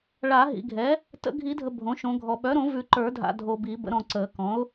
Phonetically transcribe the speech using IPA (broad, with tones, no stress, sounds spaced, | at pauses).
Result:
ɭ a˨˩˦ ɦ ḭ˨ ɡʱ ɛ˩˥ | t ə̰˨˩˦ ɡʱ i˨˩˦ dʱ ə˨ bʱ õ˩˥ ʃ õ˨˩˦ ɡʱ ɔ˨ ɓ œ˩˥ ɾ õ˨˩˦ v ʉ˨˩˦ ǃ ə˞˨˩˦ dʱ a̰˨ dʱ o˨ b i˨˩˦ b ə̰˩˥ ɾ ɔ̃˨ ǀ əː˨˩˦ k ɔ̃˩˥ ʊ̯